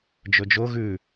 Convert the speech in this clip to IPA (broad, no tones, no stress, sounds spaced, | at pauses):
d͡ʒ ɵ d͡ʒ o ɣ ʉ